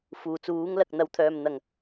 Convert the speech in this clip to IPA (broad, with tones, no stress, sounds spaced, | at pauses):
f uː˨˩ t͡s uː˨˥ ŋ l ɐ˨ k̚ n̪ ɐ˨˧ w t̪ʰ œː˨ m n̪ ɐ˨˩ ŋ